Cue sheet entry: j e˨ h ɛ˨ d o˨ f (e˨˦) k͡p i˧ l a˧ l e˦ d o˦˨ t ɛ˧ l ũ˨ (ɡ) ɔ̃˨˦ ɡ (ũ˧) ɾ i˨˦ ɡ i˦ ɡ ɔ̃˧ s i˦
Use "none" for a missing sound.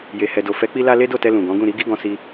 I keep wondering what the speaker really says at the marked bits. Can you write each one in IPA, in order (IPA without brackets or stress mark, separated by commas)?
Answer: ɛ˨˦, ɡ, ũ˦˨